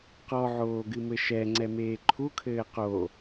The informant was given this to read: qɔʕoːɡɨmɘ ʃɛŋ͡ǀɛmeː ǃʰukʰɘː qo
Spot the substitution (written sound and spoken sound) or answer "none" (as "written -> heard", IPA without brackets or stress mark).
none